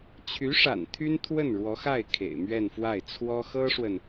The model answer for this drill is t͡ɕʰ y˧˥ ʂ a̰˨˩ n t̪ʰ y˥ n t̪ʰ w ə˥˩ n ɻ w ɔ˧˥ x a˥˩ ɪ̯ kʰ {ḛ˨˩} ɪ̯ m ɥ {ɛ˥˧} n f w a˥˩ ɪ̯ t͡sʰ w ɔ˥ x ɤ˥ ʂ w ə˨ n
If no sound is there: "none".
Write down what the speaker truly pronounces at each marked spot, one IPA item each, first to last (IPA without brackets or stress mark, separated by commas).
ḛ˨˩, ɛ˥˧